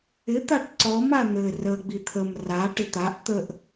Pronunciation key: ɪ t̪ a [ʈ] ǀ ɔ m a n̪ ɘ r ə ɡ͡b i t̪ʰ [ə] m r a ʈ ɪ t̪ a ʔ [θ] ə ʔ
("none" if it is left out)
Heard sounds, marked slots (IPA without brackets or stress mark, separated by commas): ʈ, ə, t̪